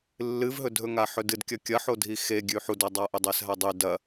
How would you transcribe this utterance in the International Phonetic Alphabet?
lː ɨ v ɦ ɵ dʱ ɵ ŋ a ħ ɵ d ɨ d kʲ ɐ kʲ ɐ ħ o dʱ i x e ɡʲ ʉ ħ u d ɐ dˤ a ʔ ɵ dˤ e s ɦ a dˤ ʉ d ɐ

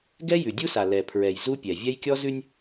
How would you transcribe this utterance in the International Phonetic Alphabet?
ɡ ɛ˦ j ʉ˨ dʲ u˦ s a˨ l ɛ˨ pʰ ɹ ɛ˨ j z u˦ pʲ ɛ˨ vʲ ɛ˦ j kʲ ɔ˦ z ʉ˦ nʲ

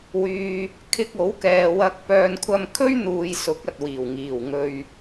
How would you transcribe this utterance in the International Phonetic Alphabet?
w yː˨ | kʰ ɪ˧ k̚ o˨˥ w k ɛː˨ w ɐ˧ k̚ p œː˨ n kʷʰ ɐ˧ m kʰ ɵ˥ ɥ n̪ uː˨ j s ʊ˨˥ k̚ ɐ˨ t̚ w iː˨˩ w ŋ iː˨˩ w ŋ ɵ˨ ɥ

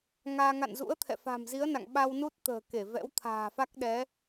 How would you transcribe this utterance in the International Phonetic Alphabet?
ŋ aː˧ ŋ a̰˧˨ n z ṵ˧˥ ə̯ t̪ʰ ɛ̰˧˨ f a̤˨˩ m z i˨˦ ə̯ n a̰˧˨ ŋ ɓ a˧ w n u˦˥ t̚ t̪ ə̤ː˨˩ k e˧˩ v ɛ̰˧˥ w t̪ʰ a̤ː˨˩ f a˦˥ k̚ ɗ ɛ˨˦

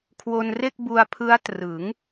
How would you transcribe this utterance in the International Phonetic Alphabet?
kʰ w o˧ n r e˥˩ k̚ b u˧ a̯ pʰ ɯ˦˥ a̯ t r ɯ˩˦ ŋ

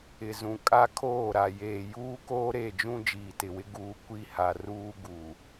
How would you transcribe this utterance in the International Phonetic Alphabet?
ɪ˨ z ũ˨ kʼ a˦ kʰ oː˦˨ ɾ a˨ j eː˨ j uː˦ k oː˦ ɾ e˦˨ d͡ʒ ũ˦ d͡ʒ iː˨ t ɪ˨ w ɪ˦ ɡ uː˨ kʷ i˦˨ h a˨ r uː˦ ɡ u˨

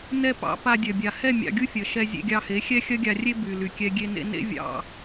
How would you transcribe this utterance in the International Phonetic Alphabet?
n ɛ˦˨ p ɑ̰˧ p a˧ dʲ ɐ˨ bʲ a˨ h ɛ˦˨ mʲ ɑ̰˧ ɡʲ u˦ fʲ ɐ˨ ʃ ɛ˧ zʲ ḛ˧ ɡʲ ɑ˧ h e˨˦ xʲ ɛ˦ xʲ ɐ˦ ɡʲ a˧ rʲ e˦ b y˨ l y˨ kʲ ɛ˧ ɡʲ e˧ n ḛ˧ n ḛ˦ vʲ ɑ̰˧

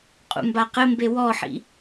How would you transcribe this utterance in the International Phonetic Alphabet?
qʼ ṵ m b a q ɘ m b e w ɔ ħ ḭ

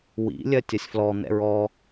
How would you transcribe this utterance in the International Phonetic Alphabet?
w ḭ lʲ ɜ tʲ ɐ sʲ f l ɔ n̪ ɛ̰ ɹ ɔ

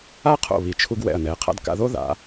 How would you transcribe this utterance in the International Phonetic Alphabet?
a˥ qʰ o̰˧˩ β i˩˧ t͡ʃʰ u˧ ɡ w ɛ̰˧˩ ɐ̯ n ɛ˩˧ qʰ a̰˧ d k a̰˧ ð o˥ ð a̰˩˧

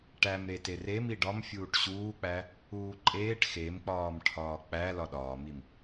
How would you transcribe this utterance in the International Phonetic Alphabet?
ʈ æ m ɾ e t e r e m i ɖ ɒ m fʲ uː ʈ ɕ uː k͡p æ | uː ǃʼ eː ʈ x e m k͡p ɒː m ʈʰ ɒː k͡p æ l ɒ ɗ ɒː m i m

